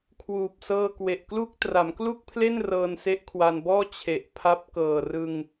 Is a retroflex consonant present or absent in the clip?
absent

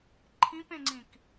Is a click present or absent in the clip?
present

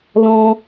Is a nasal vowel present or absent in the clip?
present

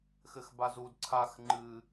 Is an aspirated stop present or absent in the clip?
present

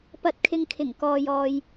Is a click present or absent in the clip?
absent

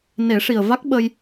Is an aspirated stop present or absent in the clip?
absent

